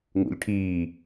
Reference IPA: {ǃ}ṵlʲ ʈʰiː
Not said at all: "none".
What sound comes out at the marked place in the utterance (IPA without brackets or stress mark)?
ŋ